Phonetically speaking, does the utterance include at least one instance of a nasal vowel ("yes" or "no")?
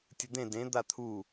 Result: yes